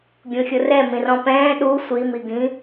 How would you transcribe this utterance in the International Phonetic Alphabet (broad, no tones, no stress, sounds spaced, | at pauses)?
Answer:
ɡʲ ũ xʲ ʊ r ɛ m ĩ r ɔ̃ p ɛ̃ː ɗ u sʷ i m i ɡ ĩ